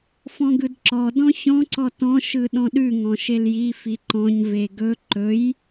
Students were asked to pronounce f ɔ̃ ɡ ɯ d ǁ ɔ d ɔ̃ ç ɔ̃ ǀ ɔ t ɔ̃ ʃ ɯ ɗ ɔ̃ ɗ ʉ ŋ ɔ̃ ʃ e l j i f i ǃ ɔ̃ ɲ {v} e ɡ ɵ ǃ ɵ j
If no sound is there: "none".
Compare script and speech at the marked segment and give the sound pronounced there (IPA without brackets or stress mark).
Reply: v